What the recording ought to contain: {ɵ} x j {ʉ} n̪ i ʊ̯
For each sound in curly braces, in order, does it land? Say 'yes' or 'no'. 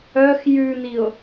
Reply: no, yes

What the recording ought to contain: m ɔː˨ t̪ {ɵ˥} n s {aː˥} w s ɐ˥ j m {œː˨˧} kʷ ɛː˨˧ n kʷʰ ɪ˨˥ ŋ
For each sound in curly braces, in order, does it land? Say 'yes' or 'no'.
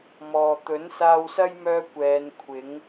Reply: no, no, no

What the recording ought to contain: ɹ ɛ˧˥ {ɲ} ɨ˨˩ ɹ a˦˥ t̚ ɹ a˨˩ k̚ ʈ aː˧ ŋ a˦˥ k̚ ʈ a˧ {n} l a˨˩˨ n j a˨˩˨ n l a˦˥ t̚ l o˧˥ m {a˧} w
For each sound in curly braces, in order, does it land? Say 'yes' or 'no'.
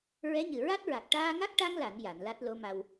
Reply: yes, no, yes

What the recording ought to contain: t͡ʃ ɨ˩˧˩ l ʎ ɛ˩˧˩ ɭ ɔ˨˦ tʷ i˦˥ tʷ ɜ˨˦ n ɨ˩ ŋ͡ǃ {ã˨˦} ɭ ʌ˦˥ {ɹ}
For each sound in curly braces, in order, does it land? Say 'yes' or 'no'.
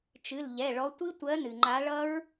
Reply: no, yes

